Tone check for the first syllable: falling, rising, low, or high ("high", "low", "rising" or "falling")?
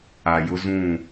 low